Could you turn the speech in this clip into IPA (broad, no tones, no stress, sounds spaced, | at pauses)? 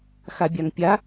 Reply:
x a bʲ a ŋ pʲ a